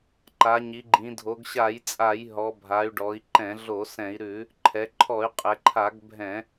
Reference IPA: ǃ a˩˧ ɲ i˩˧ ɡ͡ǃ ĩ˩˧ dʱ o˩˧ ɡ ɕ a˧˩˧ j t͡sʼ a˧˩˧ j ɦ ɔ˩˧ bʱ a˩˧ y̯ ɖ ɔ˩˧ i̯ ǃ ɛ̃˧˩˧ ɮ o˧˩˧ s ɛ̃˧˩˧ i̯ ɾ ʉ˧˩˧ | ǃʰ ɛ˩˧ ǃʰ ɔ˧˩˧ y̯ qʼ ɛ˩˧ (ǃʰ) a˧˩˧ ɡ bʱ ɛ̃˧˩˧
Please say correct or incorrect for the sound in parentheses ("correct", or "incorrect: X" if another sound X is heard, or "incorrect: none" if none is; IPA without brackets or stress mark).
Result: correct